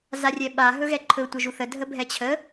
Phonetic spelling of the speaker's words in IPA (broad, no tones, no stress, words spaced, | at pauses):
zarʲɛɓa ɦɵɣɛǃʰɵ tʷəʒuθə dʱəbʱɛt͡ɕʰə